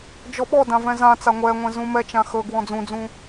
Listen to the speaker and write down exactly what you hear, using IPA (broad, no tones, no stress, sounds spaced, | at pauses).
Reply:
d͡ʒ ɔ ɓ ɔ d ã v ɛ̃ z ã t͡s a ŋʷ ɛ ŋʷ ɛ̃ z ũ m ɛ t͡ʃ ã x ɵ ɡ w ɔ̃ d͡z ũ d͡z ũ